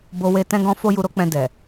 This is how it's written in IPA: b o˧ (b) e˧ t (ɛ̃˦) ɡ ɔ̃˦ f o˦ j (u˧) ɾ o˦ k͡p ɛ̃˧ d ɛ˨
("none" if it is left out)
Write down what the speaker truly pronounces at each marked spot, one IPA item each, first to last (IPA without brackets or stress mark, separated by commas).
w, ɛ̃˦, u˧